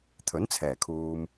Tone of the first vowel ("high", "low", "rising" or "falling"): rising